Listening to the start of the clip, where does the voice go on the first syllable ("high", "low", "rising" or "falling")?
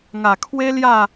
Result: low